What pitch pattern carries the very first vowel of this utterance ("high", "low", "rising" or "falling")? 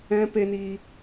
high